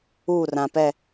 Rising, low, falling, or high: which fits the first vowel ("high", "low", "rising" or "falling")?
falling